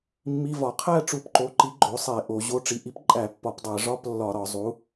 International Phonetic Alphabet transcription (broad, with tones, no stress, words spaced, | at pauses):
mːi˧˥˧vɒ˧˩˧ qʰæ˥˩ ʈ͡ʂu˧˩˧pǃo˩˧˩ ǃi˩˥ ɡ͡ǃo˩˥sˤe˧˩˧ʔo˩˧ ʑo˩˥ʈ͡ʂi˩˧ʔi˩˥p ǃʼæ˧˩˧pːɒ˧˩˧pdˤæ˧˩˧ ʐɒ˧˥˧plːɒ˧˩˧ɾɒ˧˩˧ zˤu˩˥